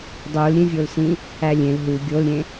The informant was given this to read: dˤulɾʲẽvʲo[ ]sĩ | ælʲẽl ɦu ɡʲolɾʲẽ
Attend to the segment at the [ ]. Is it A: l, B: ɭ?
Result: A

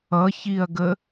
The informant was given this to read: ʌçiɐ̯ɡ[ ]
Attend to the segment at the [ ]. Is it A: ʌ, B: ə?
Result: B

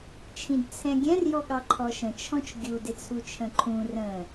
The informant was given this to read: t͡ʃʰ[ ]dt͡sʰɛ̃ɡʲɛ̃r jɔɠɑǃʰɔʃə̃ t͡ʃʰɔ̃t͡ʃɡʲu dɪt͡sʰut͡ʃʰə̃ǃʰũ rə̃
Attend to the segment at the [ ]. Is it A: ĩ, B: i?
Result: A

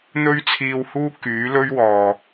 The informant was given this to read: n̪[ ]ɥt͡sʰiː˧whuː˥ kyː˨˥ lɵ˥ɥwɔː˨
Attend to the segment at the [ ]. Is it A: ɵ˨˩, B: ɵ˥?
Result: B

